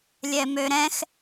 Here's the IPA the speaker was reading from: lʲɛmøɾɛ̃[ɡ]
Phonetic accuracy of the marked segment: incorrect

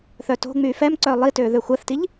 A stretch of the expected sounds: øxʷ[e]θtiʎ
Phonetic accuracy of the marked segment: incorrect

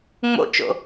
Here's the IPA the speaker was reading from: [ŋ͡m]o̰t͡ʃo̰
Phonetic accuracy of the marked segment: correct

